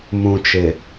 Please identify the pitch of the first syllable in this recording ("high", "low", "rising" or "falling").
low